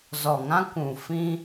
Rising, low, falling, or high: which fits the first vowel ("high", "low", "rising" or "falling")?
low